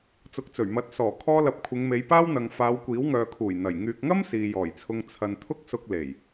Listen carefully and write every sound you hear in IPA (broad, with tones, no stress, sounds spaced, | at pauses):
t͡s ʊ˨ k̚ t͡s ɵ˨˩ ɥ m ɐ˨˥ t̚ s ɔː˨˩ kʰ ɔː˧ l ɐ˨ p̚ kʷʰ ɪ˨˧ ŋ m e˨˧ j p aː˥ w n̪ ɐ˨ ŋ f aː˨˧ w kʷ iː˨˥ w ŋ œː˨ kʰ uː˨˩ j n̪ ɐ˨˩ j ŋ yː˨ k̚ ŋ ɐ˥ m s iː˨ j ɔː˨˩ j t͡sʰ ʊ˧ ŋ t͡sʰ ɐ˨ n t̪ʰ ʊ˥ k̚ s ʊ˧ k̚ l e˨˩ j